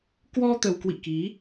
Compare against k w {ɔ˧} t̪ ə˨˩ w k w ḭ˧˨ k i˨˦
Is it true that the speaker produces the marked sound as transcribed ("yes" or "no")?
yes